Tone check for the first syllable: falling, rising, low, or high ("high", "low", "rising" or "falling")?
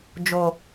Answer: low